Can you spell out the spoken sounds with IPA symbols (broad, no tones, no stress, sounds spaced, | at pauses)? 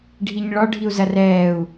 ɖʱ i ɲ ɭ ɒ ɖʱ i u̯ z ɐ r ɛː u̯